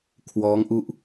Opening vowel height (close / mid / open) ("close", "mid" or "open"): mid